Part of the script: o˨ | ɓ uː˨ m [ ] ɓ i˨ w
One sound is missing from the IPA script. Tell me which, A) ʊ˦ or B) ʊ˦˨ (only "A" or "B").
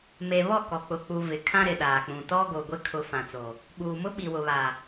A